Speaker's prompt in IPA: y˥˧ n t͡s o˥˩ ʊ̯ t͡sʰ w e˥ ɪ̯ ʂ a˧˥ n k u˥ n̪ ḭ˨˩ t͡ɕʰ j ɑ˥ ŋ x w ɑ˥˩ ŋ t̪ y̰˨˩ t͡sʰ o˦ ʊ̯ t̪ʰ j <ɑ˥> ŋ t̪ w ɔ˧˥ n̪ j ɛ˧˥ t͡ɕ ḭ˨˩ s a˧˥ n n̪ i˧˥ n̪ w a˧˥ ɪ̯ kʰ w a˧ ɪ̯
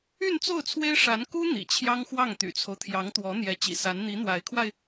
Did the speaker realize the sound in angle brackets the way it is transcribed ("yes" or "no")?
no